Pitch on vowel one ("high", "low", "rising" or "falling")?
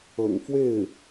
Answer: low